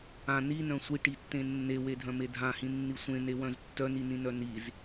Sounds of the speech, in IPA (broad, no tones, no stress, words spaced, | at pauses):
ã ninœ̃ sʷiʈitːẽ nːewedʱœ̃me dʱãhĩnːi sʷẽnewœ̃z tːœninĩnœ niz